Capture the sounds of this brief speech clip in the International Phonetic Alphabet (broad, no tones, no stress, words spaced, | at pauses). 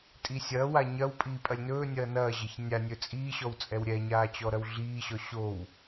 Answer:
tʼisʲɐːwa ɲɐwpʼiː pʼɐlʲnɵːnʲɐː nɐːʑɐç nʲa nʲɵt͡sʼiːɕɔw t͡sʼɛwɾʲɛɲaː t͡ɕɔɾɐwɮiːɕɔ ɕow